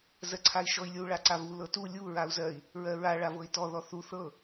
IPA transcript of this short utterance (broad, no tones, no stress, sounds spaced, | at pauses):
z ɜ ǀʰ a i̯ ʃ ɔ i̯ lʲ u ɭ a ǀ a v u l ɤ t u lʲ u ɹ a u̯ z ɜ i̯ | ɹ ɜ ɹ a ɭ a v ɤ i̯ t ɔ ð ɔ θ u θ ɤ